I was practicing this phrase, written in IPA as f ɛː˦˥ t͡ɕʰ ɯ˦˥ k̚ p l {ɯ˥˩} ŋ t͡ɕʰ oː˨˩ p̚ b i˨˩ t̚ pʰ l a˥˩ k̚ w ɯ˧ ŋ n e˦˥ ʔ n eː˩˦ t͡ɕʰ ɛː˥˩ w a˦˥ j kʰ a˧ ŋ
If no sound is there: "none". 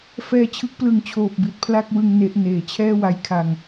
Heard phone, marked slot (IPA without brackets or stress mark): ɯ˧